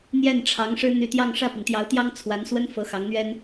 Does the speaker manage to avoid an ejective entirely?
yes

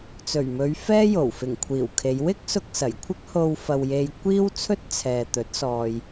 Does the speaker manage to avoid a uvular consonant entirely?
yes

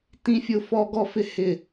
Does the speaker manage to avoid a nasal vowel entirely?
no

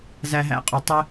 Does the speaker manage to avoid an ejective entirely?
no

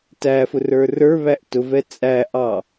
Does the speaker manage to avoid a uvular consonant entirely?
yes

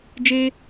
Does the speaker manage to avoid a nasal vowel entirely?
yes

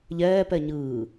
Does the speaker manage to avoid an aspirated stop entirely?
yes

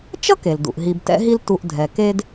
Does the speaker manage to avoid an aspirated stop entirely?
yes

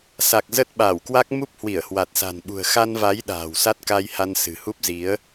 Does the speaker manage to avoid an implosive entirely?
no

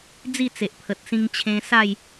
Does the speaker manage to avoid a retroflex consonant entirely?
yes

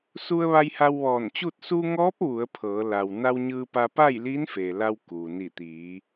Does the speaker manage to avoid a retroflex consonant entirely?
yes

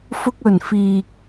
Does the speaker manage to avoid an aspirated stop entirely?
yes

